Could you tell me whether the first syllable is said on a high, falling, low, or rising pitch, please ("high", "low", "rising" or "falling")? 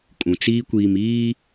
low